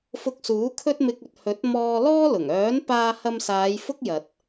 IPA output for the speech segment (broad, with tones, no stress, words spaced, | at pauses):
fʊ˧k̚suː˨˥ kʰɵ˥t̚mɪ˧k̚ɵ˨t̚hɵ˨˥t̚ mɔː˧ lɔː˥lʊ˨˩ŋ œː˨˥npaː˧hɐ˧msaː˨˧j fʊ˥k̚jɐ˨t̚